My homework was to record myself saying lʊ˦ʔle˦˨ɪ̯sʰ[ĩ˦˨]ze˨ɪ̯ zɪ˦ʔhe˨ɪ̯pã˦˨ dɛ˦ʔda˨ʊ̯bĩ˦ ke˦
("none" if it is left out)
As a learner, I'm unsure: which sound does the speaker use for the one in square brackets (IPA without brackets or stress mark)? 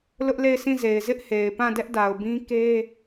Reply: ĩ˦˨